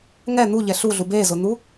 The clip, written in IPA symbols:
ŋ ɛ n̪ u ʎ ɛ ɬ u ɮ u b e z ʊ n̪ u

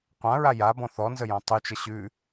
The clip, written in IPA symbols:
qʷ ã ɹ a j a b ɔ̃ θ ɔ n z ə j ɔ̃ tˤ y t͡ʃ ə ɕ ʉ

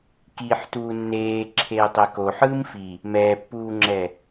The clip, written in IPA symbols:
k i ħ t uː nː eː ǁʰ eː tˤ e k o ħ ɯː m f i | m ɛː pː uː ŋ͡ǁ ɛ

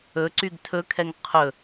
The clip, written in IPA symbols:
ɵ ǀ y ɡ tʰ ɵ kʰ ɛ ŋ qʰ ɵ

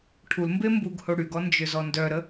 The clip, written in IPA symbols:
ʈʰ u l m b e m b u ɡ h o ɽ y ɡ ɔ n d͡ʒ ø z ɔ n d œ ɾ ə

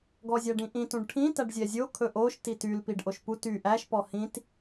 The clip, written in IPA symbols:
ɡ ɔ zʲ æ ɖ ĩ ʔ ĩ t ũ ɖ ʈʰ ĩ t æ ɖ zʲ ɛ zʲ o kʰ ɵ ʔ o ʃ t i t y l p i ɖ ʔ o ʃ p u t y ʔ æ ʃ p ɔ h ĩ t

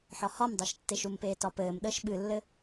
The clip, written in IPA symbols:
ħ ɒ h ɒ m dˤ œ ʃ tː e ʃ u m p eː t ɒ p ɘː m ɗ əː ʃ ɓ ɨ lː ɘ

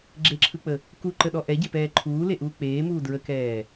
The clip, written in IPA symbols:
ɡ͡ǁ e ǁʰ ɯ k͡p ə | k u ǃ ə ɗ ɔ ʔ ɛ ɟ e p ɛː ǃʰ uː l e ʔ uː k͡p eː m uː d ɹ ə k ɛː

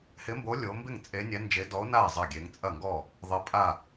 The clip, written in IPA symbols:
h ɪ˧˥ m b o˧˥ lʲ o˧˥ m b ɪ˥˩ ŋ t͡sʼ e˧˥ nʲ ɛ˧˥ n d͡ʒ e˧˥ d ɔ˧˥ o̯ n a˥˩ e̯ zˤ ɐ˥˩ ɡʲ e˧˥ ŋ t͡sʼ ɐ˥˩ ŋ ɡ ɔ˥˩ | ðˤ ɪ˧˥ pʼ a˥˩

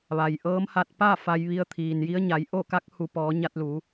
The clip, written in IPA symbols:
ʋ a˩ j ʔ ɤː˧˥ m h a˧ t̚ p a˥˨ f a˧ j ʋ i˧ ə̯ t̪ʰ iː˩ n j i˧˥ ə̯ ɲ a˩˧ j ʔ o˥˨ k a˧˥ k̚ h u˩˧ p ɔː˩˧ ɲ a˧ t̚ l u˩˧

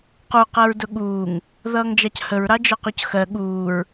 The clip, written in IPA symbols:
q u q ɜ ɹ d ʊ ɠ uː ŋ | ð ʌː ŋ d͡ʒ ɑ c h ə ɹ ɾ ɑ d͡ʒ ɒ q u c x ɜ ɠ uː ɹ

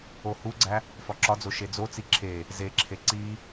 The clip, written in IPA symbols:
o h u ɡ͡ǀ æ | f ɒ ǁ ɒ d͡z o ʃ e d͡z o t͡s i ǁʰ e | z e ǁʰ e ǀ i

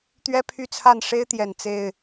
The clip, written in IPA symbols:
t̪ ɥ ɛ˦ pʰ y˥˨ t͡sʰ a˥˨ n ʂ e˦ ɪ̯ t̪ j ɛ˨˩ n t͡s e˥˨ ɪ̯

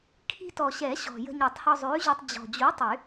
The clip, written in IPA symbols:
kʰ i̤˧ t ɔ˨˩ ɕ ɛ˨˩˦ ɕ ɔ̤˨˩ j ə̤˧ ɲ ɛ˨˩˦ tˤ h ɔ˧ zˤ ʉː˨˥ ʑ ʉ˧ tˤ d͡ʑ ɔ̤˨˩ d͡ʑ u˨˥ tˤ y˨˩˦

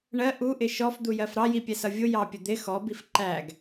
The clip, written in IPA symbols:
ɳ ɜ ʔ u ʔ ɪ ʃ ɔ f d̪ u j ɜ f ɾ ɑ j i pʲ ɛ s ʌ vʲ ʊ j ɑ pʲ ə d̪ ɪ x ɔ b i f ǃ æ ɡ

